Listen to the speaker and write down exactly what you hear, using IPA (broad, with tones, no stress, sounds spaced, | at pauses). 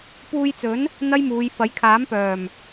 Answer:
p uː˧ j t͡s ɵ˨˥ n | n̪ ɐ˥ j m uː˨˧ j f ɐ˨˥ j kʰ aː˨˥ m p œː˨˩ m